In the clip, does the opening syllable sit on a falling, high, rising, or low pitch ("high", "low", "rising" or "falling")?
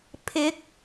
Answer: rising